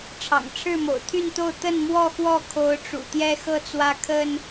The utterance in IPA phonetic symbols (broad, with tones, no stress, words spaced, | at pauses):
ʈ͡ʂʰɑ̰˨˩ŋʈ͡ʂʰɻ̩˥˨mo̰˨˩ʊ̯ t̪ʰy˥˨nt̪o˥˨ʊ̯ t̪ə˥˨nmwɔ˥˨xwɔ˥˨kʰo˨˦ʊ̯ ʈ͡ʂṵ˨˩t̪jɛ˦xɤ˦t͡swä˦ kʰə˦n